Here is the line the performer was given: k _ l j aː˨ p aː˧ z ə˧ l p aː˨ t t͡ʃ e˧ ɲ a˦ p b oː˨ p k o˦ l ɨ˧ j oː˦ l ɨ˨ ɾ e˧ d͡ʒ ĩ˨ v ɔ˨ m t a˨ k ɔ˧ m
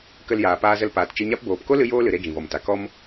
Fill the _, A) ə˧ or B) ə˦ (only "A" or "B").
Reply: A